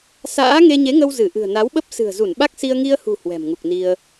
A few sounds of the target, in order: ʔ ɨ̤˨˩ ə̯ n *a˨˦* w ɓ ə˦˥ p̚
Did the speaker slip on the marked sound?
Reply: no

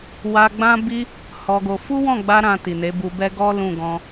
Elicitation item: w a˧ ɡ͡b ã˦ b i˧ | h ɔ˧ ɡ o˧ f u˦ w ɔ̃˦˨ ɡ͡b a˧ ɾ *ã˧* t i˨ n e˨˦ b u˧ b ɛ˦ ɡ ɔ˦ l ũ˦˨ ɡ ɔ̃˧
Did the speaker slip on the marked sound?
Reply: no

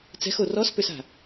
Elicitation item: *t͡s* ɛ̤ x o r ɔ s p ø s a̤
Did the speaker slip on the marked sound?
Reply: no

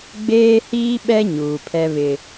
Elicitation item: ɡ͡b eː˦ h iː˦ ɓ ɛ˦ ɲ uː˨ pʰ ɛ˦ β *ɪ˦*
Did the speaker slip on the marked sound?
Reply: no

